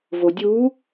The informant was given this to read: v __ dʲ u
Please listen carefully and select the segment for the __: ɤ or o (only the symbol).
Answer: o